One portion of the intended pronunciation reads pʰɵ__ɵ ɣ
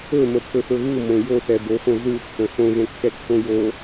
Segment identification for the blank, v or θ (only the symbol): θ